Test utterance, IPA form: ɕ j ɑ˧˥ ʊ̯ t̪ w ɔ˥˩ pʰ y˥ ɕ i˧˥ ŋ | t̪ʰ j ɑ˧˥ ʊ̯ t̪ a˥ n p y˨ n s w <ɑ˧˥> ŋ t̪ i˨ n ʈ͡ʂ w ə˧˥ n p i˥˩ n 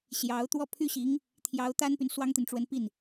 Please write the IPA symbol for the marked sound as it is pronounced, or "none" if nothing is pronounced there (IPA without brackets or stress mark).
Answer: ɑ˥